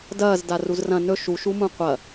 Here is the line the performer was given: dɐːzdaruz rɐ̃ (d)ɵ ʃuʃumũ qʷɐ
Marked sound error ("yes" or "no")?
yes